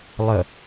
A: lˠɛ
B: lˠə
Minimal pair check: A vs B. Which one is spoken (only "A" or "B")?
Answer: B